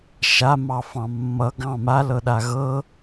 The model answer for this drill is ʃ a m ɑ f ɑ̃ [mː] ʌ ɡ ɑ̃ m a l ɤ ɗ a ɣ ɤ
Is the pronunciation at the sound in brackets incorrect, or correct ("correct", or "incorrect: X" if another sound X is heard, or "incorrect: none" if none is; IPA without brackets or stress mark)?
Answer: correct